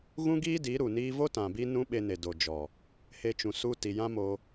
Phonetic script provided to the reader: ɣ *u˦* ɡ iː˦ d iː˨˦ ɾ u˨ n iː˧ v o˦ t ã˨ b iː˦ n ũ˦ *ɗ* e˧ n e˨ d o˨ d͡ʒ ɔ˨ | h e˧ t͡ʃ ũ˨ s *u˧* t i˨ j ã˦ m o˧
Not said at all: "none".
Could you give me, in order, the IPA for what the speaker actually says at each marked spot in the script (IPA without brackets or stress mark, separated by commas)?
ũ˦, ɓ, u˦